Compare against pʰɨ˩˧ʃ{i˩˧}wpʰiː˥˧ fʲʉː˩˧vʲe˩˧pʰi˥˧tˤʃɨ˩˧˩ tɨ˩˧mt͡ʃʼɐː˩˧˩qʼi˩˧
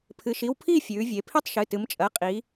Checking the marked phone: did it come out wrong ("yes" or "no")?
yes